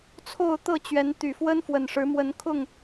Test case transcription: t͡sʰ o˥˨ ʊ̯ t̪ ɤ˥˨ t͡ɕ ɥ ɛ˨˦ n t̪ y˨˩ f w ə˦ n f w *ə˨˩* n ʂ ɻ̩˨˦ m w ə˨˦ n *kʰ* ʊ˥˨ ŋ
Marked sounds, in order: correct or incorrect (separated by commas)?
correct, correct